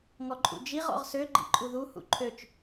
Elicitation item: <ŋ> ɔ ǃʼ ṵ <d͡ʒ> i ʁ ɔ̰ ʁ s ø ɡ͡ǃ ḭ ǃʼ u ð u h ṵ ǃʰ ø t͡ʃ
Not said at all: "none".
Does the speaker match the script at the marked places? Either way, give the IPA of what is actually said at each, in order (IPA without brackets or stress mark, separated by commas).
ŋ, d͡ʒ